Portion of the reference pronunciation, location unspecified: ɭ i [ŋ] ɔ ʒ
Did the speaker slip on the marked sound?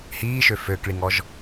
no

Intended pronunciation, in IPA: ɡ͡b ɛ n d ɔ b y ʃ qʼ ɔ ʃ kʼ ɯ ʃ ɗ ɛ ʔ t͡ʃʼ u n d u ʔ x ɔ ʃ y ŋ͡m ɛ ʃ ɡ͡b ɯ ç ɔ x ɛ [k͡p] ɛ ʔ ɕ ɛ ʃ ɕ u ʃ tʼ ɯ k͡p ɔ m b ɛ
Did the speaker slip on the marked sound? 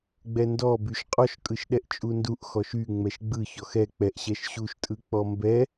no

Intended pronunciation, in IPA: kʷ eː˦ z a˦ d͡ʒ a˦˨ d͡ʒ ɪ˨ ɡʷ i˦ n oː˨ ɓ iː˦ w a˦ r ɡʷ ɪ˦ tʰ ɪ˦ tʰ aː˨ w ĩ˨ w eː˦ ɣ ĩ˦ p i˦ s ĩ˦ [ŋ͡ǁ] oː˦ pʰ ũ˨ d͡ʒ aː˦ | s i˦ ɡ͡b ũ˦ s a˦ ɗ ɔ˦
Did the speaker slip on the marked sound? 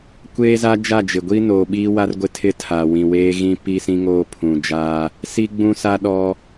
yes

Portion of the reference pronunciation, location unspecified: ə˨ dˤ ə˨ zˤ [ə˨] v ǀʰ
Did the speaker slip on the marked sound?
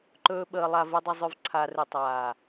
yes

